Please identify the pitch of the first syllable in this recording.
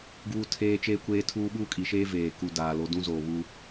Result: high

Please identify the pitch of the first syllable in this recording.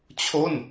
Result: falling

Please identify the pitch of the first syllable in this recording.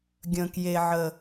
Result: high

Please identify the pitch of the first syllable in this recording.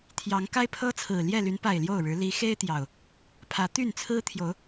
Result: rising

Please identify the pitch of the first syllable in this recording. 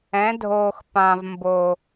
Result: rising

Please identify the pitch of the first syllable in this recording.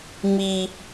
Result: high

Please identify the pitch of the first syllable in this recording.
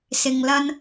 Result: low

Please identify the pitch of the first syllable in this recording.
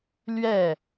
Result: falling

